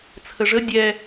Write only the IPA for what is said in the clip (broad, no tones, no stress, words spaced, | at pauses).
t͡sʰəʐə dʲɛ